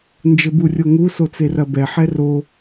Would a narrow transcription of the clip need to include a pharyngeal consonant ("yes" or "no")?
yes